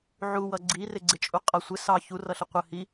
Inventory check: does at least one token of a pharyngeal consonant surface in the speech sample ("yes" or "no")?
yes